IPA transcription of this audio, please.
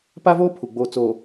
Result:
p a˦ v oː˦ pʰ u˨ ɡ͡b oː˨ t͡s oː˨

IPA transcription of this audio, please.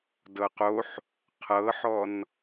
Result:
d ɤ q o ħ | qʰ ɤ ħ ɔ n

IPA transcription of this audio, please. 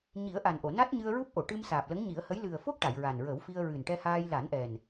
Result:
ɲ i˨˩˦ ə̯ ʔ a˨˩ n ʔ o˨˩˨ n a˦˥ t̚ ɲ ɨ˧ ə̯ ɹ u˦˥ p̚ ʔ o˨˩˨ ʈ ɨ˧ m s aː˨˩ p̚ l ə˧˥ ŋ ɲ i˨˩˦ ə̯ h ə˧˥ j l ɨ˨˩ ə̯ f o˦˥ k̚ ʈ a˨˩˨ j ɹ a˨˩ n ɹ ə˨˩˦ w f i˧ ə̯ ɹ ɨ˨˩ n ʈ ɛ˧ h aː˧ j l a˨˩˦ n ʔ ɛ˨˩ n

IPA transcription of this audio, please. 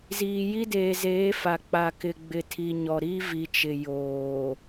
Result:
z iː˨ j i˦ d eː˨ z eː˨˦ f a˨ k͡p a˨ k ɪ˨ ɡ͡b ɪ˨ tʰ i˨ ɲ ɔ˨ ɾ i˦ v i˨ t͡ʃ ɪ˨ j oː˨

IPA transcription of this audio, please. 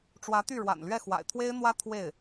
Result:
ʈ͡ʂ w ä˧˥ t̪ y˥˩ ɻ w a̰˨˩ n l ɥ ɛ˥˩ x w a̰˨˩ ɪ̯ t̪ʰ w e˥ ɪ̯ n̪ w ä˥ t̪ʰ w e˥˩ ɪ̯

